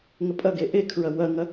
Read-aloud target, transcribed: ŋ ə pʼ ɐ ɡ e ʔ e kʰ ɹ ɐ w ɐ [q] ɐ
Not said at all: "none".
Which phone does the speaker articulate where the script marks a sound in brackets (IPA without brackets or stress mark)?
ŋ